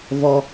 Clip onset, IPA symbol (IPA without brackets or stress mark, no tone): v